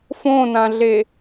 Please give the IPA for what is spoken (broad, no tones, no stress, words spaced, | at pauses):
fõnãɮe